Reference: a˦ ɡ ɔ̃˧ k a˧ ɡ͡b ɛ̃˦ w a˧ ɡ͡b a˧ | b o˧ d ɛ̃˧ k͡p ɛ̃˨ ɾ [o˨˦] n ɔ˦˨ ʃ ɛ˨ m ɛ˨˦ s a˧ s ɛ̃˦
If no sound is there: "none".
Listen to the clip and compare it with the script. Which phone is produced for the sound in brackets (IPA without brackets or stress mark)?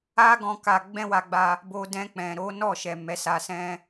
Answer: o˨˦